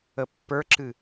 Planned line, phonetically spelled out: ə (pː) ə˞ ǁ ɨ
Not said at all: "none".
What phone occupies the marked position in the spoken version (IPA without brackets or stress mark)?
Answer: pː